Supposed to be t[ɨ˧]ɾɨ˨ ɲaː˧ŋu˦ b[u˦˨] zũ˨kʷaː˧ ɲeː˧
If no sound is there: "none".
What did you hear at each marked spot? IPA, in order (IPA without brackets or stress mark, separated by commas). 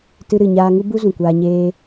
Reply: ɨ˧, u˦